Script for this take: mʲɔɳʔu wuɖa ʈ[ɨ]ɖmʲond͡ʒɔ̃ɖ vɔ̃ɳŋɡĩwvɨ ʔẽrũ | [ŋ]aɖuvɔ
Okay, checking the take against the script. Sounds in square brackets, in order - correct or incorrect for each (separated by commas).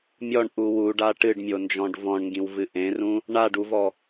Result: correct, incorrect